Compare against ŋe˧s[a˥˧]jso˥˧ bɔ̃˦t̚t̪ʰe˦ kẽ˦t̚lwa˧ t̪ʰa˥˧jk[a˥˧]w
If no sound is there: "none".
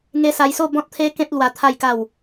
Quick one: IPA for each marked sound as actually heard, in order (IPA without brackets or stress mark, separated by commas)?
a˧, a˥˧